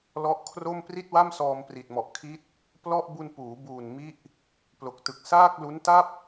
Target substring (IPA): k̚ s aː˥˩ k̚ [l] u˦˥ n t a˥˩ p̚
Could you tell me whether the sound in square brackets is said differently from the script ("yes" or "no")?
no